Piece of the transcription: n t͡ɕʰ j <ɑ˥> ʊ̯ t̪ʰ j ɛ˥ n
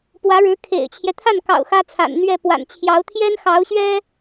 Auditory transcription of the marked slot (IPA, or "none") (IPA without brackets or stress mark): ɑ˧˥